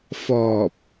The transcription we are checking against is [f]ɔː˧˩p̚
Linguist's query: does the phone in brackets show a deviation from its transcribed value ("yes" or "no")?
no